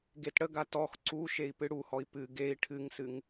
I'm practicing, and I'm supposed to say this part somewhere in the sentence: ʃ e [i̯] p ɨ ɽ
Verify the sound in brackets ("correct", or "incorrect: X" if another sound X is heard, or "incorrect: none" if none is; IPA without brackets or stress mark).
correct